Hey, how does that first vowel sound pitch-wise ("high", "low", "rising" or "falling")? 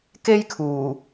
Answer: high